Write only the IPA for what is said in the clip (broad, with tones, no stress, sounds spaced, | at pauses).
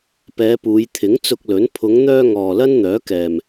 p ɛː˨˧ p uː˨˧ j t̪ʰ ɪ˨˥ ŋ t͡s ʊ˧ k̚ l ɵ˨˥ n pʰ ʊ˨˧ ŋ n̪ œː˧ ŋ ɔː˨ l ɐ˥ n n̪ œː˨˥ k ɛː˨ m